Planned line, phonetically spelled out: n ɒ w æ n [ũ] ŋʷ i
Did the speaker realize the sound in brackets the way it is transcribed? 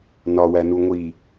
no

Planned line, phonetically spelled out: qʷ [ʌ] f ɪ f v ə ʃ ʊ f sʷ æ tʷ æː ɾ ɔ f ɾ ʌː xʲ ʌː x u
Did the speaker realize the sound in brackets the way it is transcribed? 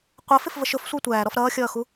yes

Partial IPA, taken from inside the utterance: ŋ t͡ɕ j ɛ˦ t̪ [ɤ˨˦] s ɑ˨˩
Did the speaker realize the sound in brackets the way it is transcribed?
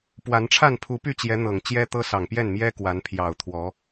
no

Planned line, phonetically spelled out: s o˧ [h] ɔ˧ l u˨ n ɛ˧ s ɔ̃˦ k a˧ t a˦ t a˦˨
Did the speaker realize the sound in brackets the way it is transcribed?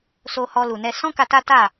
yes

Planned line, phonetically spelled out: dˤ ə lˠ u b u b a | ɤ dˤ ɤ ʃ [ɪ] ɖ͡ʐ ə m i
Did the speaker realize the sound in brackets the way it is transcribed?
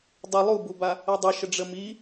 no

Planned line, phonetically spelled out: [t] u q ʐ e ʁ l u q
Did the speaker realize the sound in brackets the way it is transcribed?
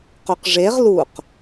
no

